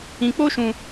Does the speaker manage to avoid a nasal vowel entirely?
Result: no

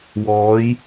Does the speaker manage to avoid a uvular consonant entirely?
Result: yes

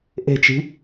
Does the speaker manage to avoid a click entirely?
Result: yes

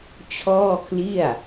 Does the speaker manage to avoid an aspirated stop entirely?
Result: no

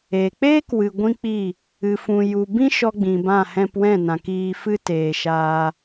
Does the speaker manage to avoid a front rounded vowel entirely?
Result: yes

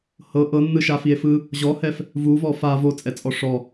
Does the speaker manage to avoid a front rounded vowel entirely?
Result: yes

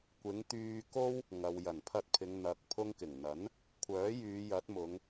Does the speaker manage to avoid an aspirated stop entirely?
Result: no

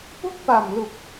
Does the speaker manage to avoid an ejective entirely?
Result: yes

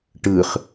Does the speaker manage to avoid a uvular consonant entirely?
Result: no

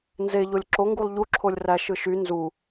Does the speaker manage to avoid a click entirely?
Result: no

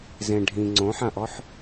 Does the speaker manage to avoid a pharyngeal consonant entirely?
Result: no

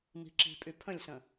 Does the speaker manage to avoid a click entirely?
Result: no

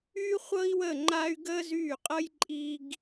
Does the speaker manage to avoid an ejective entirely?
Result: no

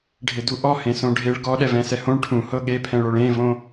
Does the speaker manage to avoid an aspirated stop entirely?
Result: no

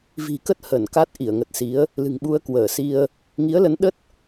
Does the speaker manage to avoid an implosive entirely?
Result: no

